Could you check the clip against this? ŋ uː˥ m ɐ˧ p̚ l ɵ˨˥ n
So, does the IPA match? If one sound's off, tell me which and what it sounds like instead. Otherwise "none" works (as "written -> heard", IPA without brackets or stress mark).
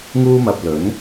none